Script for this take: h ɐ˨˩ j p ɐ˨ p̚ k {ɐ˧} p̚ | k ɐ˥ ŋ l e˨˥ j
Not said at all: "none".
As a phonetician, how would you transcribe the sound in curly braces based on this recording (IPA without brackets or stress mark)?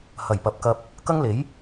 ɐ˧